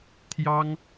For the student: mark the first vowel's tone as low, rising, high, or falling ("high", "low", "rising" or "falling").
high